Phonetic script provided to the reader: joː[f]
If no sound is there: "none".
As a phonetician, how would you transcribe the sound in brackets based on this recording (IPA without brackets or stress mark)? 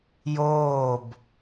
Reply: b